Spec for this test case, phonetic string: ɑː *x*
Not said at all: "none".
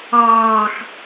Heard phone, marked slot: x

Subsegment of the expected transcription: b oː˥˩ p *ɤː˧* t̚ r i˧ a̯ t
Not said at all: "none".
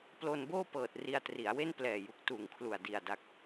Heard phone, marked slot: ɤː˨˩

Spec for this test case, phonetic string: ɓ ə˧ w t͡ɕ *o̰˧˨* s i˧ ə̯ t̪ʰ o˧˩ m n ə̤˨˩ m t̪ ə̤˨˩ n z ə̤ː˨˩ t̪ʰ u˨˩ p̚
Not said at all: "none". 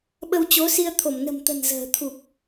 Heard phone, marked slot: o˨˦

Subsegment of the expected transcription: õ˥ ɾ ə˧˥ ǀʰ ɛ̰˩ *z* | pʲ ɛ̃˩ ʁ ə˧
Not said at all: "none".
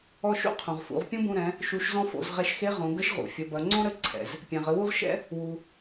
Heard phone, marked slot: z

